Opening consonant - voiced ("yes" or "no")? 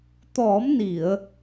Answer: no